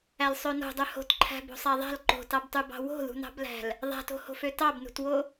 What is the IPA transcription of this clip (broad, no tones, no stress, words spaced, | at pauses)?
ælsˤøno̤dˤø ho̤tǃʰæ̤bo̤ sˤæðˤæ̤l ǃo̤tɑbtˤybɑ̤ wo̤ðṳnɑ̤blæ̤l | ðˤæ̤to̤ho̤f øtɑbnṳtwo